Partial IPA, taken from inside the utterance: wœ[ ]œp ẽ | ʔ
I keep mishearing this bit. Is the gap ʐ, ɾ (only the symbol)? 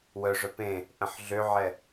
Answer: ʐ